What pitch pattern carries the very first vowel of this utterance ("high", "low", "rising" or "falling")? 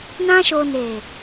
high